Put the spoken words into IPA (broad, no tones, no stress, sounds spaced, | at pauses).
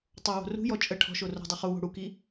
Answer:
tˤ o w o̤ r ṳ j ɔ t͡ʃʼ ə ʈʰ ɔ̤ ʃ o r o̤ dˤ u χ u w o̤ ɽ u k i